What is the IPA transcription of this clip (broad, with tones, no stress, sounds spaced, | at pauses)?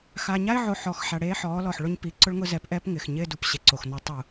x aː˨ ɲ a˦ ɪ̯ ʕ o˨ ħ ɔː˨ x ħ a˨ ɽ eː˦ ħ ɔː˨˦ l ɔ˨ ħ ɭ ʊ˦ ɲ p i˨˦ ǀ ʊ˦ ɭ ŋ ʊ˦ z ɛ˨˦ p ʔ ɛː˦ p ŋ ɪː˨ x ɲ ɪː˦ d u˨ p ɕ e˨ ǀ o˨ x n ɔ˦ tˤ u˦˨